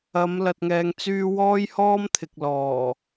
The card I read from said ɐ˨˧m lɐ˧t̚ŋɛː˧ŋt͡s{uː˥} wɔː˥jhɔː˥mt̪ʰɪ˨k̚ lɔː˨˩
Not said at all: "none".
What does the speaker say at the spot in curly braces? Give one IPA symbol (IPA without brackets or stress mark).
yː˥